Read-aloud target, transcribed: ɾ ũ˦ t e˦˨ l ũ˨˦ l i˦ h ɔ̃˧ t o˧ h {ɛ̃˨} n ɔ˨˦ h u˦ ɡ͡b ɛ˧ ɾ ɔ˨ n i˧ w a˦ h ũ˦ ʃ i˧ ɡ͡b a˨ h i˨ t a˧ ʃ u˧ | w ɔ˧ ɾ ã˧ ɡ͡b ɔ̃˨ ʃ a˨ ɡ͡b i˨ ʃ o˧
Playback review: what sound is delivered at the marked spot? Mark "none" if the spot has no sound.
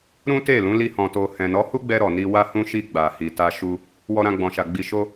ɛ̃˨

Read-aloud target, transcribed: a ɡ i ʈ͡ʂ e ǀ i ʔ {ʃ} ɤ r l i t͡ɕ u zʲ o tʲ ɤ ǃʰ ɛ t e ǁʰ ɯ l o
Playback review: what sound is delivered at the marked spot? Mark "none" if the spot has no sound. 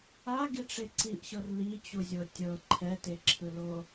ɕ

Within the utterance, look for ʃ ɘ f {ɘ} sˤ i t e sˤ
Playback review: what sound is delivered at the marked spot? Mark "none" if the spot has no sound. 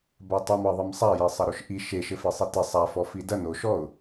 e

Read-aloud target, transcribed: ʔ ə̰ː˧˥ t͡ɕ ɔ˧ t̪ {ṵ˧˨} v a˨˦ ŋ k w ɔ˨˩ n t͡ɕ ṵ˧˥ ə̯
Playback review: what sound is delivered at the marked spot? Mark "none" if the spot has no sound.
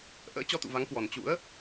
ṵ˧˨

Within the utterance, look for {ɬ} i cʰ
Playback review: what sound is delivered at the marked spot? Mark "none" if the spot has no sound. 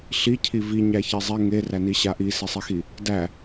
ɬ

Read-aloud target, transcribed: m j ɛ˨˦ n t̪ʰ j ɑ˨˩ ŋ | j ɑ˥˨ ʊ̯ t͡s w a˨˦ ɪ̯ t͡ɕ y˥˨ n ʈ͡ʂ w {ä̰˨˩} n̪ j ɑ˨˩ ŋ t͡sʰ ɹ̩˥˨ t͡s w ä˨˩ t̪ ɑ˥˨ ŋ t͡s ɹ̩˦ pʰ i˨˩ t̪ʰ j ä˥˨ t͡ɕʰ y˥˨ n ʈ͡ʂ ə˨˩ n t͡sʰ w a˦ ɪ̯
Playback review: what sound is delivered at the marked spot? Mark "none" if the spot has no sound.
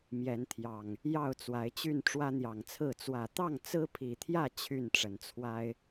ä˦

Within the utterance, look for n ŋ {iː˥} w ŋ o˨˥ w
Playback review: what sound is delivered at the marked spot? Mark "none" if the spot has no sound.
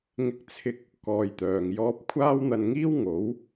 iː˥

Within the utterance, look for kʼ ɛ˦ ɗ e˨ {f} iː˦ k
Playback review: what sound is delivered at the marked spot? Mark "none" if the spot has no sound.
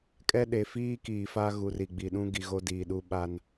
f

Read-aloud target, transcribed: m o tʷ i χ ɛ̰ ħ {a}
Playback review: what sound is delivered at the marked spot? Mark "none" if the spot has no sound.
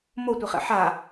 a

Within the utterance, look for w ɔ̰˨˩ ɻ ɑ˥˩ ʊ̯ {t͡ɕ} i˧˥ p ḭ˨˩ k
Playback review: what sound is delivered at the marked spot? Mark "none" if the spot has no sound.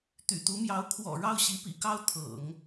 ɕ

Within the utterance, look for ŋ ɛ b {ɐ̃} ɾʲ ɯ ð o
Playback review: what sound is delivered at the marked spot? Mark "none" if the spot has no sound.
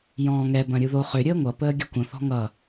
ɐ̃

